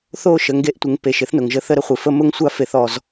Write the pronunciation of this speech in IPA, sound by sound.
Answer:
θo˦˨ ʃə˨ŋɡe˧ʔtʷɪ˨ŋpe˨ʃ ɪ˦θnʊ˨ŋʒə˦θə˦ ɾə˦χʷɪ˧fə˦ mʊ˦ŋsʷa˦ fe˧θɔ˧z

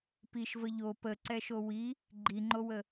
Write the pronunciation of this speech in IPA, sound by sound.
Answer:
piʃvə ʎo pəǀɛʃo wi | ɡ͡ǃiŋ͡ǃowə

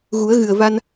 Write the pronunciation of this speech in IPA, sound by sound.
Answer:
ɣu˨˩˦ə̯ɣɨ˨˩ə̯va˧n

